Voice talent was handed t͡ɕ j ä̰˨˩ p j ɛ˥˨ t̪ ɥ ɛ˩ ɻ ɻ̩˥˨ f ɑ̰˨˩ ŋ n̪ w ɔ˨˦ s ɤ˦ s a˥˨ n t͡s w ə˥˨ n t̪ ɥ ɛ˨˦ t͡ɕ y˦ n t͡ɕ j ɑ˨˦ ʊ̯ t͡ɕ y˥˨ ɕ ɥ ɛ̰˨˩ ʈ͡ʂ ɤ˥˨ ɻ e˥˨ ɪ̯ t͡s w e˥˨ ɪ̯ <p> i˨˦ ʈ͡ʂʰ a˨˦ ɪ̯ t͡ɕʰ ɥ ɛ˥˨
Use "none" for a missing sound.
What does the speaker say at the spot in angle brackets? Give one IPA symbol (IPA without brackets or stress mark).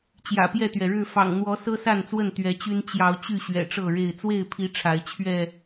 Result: pʰ